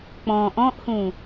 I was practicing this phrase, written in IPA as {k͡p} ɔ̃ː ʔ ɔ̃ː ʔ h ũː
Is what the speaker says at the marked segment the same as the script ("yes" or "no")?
yes